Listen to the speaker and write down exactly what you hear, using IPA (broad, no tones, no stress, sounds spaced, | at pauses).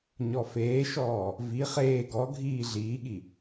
ɲ ɔ f eː ʃ ɔː | v i χ eː ɡ ɔ ɡʱ iː ɮ iː ɠ i